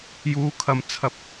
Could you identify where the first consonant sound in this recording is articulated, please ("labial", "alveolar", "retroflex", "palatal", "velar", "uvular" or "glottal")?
palatal